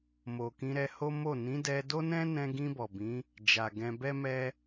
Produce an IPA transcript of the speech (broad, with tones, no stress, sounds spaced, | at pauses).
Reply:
m o˨ k ĩ˧ ɾ ɛ˧ h o˦ m o˦˨ n ĩ˨˦ d ɛ˧ d o˦ n ɛ̃˦ n ɛ̃˧ ɡ ĩ˧ b ɔ˨ b ĩ˨˦ | d͡ʒ a˨ ɡ ɛ̃˧ b ɛ˦ m ɛ˦